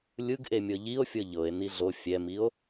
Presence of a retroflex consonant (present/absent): absent